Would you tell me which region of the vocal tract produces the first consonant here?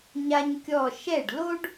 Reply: palate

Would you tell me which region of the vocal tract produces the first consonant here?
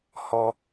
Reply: throat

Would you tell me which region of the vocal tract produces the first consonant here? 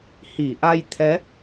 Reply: throat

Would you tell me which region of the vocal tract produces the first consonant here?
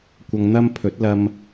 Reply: velum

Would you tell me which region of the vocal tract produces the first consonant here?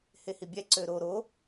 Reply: throat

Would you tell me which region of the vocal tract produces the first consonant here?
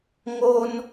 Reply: velum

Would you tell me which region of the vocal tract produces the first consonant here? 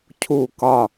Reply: palate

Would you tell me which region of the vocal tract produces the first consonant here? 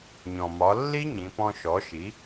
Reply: palate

